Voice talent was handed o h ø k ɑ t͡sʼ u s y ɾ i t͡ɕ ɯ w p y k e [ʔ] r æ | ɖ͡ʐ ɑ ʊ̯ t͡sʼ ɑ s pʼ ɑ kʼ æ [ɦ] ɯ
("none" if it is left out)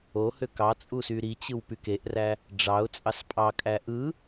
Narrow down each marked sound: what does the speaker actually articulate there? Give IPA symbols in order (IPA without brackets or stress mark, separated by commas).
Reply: ʔ, ʔ